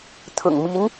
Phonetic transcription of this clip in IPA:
t̪ʰʊ̰˨˩ŋmi˧˥n

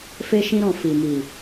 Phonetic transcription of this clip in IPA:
fe˦ʃĩ˦ɾɔ̃˦˨ fi˨mi˨

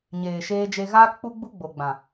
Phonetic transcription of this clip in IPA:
ɲeː˨ʃeː˧d͡ʒe˧ ɣaː˦kk͡pu˦ɡ͡bu˦ ɡ͡bo˨ɡ͡bã˨

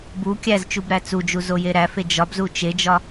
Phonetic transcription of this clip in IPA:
bu kʲæzt͡ʃub ɾæt͡sud͡ʒu zojeɾæfe d͡ʒɒbzu t͡ʃed͡ʒɒ

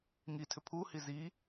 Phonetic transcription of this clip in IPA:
ŋi tʰʏpʰuhi zi

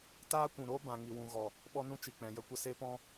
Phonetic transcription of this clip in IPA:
taː˦kʷũ˨ɾoː˦bã˨ ŋi˨wũ˨ɣɔ˨ | ɓɔ˦nũ˦ t͡ʃi˨k͡pɛ̃˨jə˦kʷə˧ se˦pɔ̃˦

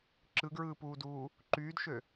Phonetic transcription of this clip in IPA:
ǁɯɡɹɯːpuːduː | ǃyːdʃø

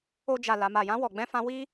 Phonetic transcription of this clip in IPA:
o˧d͡ʒa˨ la˨ma˨jã˧ wɔ˨ɡ͡bɛ̃˧ fã˧wi˦

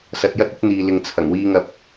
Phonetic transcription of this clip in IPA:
sɐ˧t̚jɐ˥t̚ɵ˥t̚ n̪iː˨lɪ˨ŋ t͡sʰɐ˨˩ŋwiː˧ŋɐ˧p̚

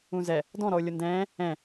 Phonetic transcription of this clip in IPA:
ũzɛ | dɔ̃ɾɔʊ̯ lʲʊndɛ̃ː | ɛ̃

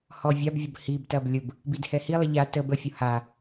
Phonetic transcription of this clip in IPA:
hɔvʲabvʲəb hibtɐb lʲʊb | bidhɛhilˠə ʎa təb əfʲʊ ha

